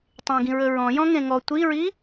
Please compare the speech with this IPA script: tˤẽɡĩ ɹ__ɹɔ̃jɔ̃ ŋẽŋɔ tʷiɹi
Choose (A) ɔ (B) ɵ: B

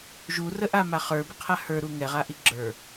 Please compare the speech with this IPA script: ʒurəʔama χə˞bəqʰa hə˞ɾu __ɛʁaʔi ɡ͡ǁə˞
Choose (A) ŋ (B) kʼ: A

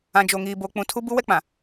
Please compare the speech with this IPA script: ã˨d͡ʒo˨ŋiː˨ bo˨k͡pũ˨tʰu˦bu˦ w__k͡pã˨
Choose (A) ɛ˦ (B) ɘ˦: A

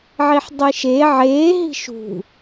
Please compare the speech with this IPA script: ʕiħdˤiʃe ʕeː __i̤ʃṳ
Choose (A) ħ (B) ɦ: B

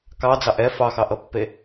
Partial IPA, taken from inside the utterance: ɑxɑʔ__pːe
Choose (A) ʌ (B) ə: A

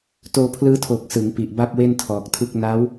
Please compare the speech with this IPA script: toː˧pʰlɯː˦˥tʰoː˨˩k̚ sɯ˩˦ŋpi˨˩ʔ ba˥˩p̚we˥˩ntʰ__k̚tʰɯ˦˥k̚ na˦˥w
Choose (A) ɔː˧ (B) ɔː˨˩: B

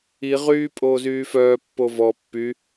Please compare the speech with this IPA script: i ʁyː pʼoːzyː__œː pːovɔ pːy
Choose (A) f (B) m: A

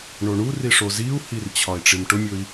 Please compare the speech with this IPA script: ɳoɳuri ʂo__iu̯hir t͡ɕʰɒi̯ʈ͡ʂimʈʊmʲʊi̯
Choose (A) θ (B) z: B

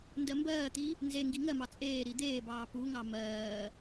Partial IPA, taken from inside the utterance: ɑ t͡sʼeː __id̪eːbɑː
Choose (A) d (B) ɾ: B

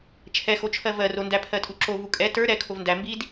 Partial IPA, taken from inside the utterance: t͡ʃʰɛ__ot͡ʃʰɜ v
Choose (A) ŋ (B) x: B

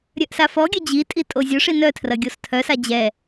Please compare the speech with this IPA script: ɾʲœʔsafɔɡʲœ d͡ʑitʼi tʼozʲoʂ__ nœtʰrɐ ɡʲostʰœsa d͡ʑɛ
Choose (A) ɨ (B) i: B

